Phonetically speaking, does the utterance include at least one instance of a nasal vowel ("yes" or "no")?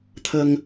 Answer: no